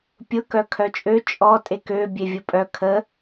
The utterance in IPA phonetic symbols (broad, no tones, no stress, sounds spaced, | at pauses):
pʲ ʊ k œ kʰ œ t͡ʃʼ ø t͡ʃʼ ɔ tʼ e k ø bʲ e vʲ ʊ pʼ œ kʰ ə